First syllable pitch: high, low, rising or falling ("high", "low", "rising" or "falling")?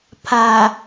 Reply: low